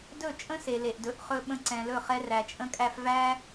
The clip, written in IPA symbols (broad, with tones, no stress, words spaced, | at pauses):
dɵ˦˨t͡ʃʼə̃˦se˨le˨ʔ dɵ˧ʔχɵ˦ɓə̃˦ ǀɛ̃˧lɵ˦˨χɛ˦ ræ˧t͡ʃʼə̃˦kʼæ˦f væ˦